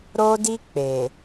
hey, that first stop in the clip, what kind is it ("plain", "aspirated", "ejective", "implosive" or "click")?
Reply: plain